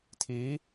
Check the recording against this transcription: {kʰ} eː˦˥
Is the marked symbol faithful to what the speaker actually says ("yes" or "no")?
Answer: no